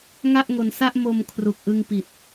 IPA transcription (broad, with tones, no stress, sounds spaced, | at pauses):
ŋ a˥˩ ʔ ŋ o˧ n s a˥˩ ʔ m o˧ m kʰ r u˨˩ k̚ ʔ ɯ˧ ŋ p i˨˩ t̚